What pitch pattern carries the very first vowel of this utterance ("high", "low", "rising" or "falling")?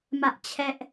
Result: high